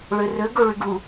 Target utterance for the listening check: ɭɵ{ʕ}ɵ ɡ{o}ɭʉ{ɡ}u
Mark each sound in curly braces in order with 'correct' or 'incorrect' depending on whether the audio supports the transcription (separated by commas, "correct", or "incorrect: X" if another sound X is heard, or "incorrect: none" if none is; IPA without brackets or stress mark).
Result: incorrect: r, correct, correct